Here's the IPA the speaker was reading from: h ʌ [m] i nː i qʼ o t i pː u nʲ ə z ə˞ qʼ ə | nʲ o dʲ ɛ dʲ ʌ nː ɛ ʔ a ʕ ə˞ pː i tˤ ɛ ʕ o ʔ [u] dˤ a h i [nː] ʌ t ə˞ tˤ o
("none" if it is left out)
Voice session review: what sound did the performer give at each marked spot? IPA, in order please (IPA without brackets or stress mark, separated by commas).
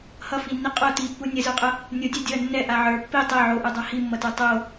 f, u, mː